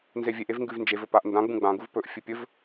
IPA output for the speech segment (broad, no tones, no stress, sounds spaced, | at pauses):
n z e vʲ e ʔ e v ŋ ɡ ʉ v n d͡ʒ e v ɵ p a ʔ n d ã ɡ͡b ũ ɡ͡b ã ɡ u v p ɵ ʔ fʲ ɨ pʲ ɵ v